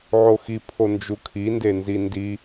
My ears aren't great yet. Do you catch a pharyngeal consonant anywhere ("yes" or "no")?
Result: yes